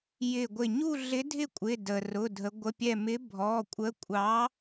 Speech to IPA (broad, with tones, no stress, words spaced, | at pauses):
jɪ˧˩ɡʷɪ˧˩ ɲu˥˧ ɮɪ˨˥ dʱɪ˥˧kʷʼɪ˩˧˩ də˩rʊ˩˧˩dʱə˩˧ ɡʷə˩˧˩pʲɛ˧˩mɪ˨˥ bʱɔ˩˧˩kʷʼə˨˥kʷʼɑ˨˥